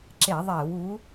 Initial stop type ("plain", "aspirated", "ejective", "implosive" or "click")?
click